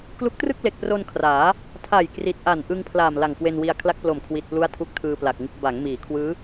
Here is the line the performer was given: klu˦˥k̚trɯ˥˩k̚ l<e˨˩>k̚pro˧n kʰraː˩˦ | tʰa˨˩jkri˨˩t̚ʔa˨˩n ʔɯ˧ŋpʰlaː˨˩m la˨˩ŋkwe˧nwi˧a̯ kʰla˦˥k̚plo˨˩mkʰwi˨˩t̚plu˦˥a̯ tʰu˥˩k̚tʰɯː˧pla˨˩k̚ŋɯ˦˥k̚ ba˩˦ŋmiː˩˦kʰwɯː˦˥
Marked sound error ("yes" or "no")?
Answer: no